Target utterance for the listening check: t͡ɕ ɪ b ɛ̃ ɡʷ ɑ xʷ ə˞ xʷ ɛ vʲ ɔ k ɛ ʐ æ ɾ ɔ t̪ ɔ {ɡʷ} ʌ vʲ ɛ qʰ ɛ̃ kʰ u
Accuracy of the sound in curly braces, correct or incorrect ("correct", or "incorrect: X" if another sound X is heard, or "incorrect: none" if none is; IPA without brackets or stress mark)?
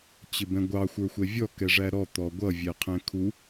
correct